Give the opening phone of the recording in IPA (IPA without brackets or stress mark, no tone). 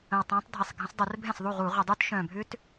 ə̃